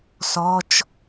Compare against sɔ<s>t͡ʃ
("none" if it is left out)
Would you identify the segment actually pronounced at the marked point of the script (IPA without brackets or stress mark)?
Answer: none